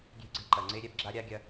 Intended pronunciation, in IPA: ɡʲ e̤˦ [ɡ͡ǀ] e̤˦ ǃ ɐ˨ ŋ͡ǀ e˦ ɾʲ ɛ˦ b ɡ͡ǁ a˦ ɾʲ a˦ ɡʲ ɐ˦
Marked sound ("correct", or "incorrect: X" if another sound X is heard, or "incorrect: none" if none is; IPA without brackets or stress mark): correct